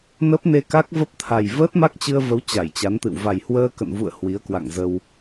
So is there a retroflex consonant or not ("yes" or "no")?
no